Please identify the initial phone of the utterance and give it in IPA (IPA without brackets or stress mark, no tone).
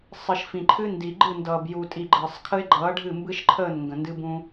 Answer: sˤ